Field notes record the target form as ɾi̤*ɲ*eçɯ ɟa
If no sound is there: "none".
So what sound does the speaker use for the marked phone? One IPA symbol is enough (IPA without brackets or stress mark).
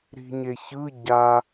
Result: ɲ